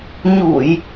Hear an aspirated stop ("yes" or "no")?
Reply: no